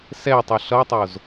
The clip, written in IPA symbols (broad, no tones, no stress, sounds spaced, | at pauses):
s ɛ tˤ ʌ ɬ ʌ tˤ o z